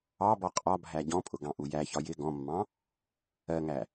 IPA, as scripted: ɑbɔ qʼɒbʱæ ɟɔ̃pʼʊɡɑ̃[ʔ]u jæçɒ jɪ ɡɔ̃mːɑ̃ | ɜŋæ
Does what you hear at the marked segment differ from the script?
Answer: no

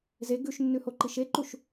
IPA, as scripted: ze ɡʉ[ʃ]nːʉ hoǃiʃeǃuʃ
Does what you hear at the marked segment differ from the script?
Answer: no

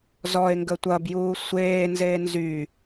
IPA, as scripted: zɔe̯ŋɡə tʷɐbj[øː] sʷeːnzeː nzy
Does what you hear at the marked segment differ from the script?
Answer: yes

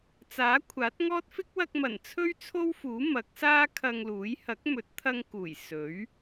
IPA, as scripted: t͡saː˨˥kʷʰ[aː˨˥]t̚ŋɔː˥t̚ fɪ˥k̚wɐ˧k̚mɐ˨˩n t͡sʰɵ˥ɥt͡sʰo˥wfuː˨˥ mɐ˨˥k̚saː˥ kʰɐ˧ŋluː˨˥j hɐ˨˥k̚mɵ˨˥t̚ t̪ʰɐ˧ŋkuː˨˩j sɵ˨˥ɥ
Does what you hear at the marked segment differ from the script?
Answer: no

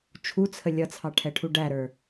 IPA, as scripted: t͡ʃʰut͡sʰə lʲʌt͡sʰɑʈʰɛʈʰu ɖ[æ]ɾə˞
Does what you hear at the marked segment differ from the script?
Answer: no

